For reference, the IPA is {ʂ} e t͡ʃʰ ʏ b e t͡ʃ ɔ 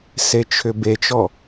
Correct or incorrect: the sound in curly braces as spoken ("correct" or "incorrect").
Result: incorrect